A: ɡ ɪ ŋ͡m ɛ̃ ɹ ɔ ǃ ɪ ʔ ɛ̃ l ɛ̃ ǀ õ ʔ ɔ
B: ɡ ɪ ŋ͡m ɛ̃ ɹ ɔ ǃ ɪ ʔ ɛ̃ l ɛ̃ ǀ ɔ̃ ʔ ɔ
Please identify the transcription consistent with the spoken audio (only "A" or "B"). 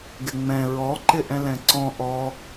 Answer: B